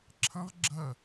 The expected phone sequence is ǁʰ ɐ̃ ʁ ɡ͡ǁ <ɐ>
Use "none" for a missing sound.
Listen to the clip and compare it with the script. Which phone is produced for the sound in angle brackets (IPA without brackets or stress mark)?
ɐ